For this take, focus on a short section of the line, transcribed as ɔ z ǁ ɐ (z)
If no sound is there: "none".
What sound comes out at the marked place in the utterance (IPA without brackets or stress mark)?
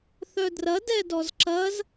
z